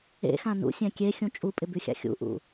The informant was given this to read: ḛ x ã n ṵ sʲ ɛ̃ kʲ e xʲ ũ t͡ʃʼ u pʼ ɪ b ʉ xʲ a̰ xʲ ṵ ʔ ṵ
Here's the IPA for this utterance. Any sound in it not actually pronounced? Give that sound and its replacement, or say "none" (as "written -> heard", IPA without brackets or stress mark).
none